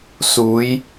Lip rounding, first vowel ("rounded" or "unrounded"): rounded